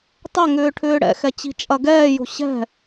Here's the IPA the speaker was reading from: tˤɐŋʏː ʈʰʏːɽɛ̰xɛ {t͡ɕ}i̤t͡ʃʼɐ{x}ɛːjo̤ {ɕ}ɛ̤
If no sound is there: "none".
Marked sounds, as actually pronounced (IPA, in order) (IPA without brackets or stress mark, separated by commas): t͡ɕ, ɡ, ɕ